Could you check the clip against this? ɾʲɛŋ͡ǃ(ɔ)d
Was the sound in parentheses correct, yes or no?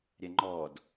yes